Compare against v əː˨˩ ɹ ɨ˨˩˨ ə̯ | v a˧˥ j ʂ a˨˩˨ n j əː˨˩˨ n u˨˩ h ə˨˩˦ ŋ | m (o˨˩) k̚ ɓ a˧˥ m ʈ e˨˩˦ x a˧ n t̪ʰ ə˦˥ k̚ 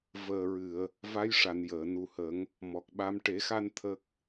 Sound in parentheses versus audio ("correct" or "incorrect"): incorrect